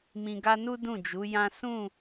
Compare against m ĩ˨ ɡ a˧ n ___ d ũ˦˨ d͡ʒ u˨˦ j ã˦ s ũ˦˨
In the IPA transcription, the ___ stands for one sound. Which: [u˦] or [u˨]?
u˦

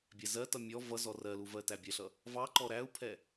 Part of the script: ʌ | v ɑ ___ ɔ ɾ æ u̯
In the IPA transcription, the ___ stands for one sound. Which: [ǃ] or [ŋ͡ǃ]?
ǃ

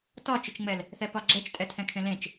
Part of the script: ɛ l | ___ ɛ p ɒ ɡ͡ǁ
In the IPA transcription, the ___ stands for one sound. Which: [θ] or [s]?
θ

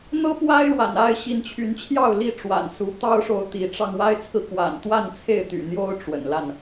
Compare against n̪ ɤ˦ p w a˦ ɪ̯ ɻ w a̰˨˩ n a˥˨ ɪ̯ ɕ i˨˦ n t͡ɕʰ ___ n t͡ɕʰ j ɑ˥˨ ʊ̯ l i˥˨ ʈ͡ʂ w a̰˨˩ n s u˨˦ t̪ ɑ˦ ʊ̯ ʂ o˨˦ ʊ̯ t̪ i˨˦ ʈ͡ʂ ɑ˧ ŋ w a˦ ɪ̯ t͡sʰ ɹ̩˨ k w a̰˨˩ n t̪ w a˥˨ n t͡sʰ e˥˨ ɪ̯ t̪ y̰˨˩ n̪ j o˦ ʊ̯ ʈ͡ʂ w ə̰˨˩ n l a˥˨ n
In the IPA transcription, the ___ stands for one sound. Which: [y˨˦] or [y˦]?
y˨˦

